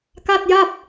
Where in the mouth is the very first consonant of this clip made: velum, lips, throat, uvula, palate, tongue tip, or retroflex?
velum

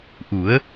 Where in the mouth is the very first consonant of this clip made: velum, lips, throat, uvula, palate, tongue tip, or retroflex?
throat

